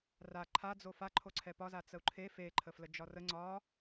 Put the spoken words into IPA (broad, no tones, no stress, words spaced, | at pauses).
ra ǃʰad͡zo faǃʰoǀʰɛ pɒza t͡səu̯ǃʰe fe ǃʰəfləd͡ʒɒrə ŋ͡ǀɒ